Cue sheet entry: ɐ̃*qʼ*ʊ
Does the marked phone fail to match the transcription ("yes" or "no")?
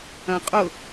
no